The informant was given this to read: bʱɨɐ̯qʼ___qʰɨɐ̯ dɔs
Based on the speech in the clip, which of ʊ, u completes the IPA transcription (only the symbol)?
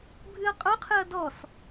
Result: ʊ